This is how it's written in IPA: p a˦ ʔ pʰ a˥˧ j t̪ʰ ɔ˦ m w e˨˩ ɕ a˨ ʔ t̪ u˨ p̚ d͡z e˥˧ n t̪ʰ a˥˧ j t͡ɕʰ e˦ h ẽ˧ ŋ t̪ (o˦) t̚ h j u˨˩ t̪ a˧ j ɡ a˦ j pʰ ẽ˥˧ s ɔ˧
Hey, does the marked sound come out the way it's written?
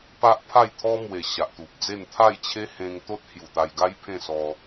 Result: yes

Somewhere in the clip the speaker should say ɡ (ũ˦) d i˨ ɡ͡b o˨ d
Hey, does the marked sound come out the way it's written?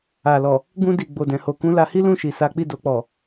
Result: no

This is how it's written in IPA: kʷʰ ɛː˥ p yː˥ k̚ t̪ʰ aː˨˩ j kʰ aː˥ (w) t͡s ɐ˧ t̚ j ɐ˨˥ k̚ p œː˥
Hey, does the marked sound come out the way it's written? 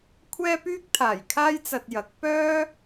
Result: no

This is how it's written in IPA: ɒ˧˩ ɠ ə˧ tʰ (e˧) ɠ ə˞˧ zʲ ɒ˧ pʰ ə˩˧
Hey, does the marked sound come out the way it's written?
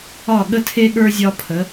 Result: yes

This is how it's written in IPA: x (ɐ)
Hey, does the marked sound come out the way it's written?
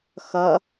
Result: yes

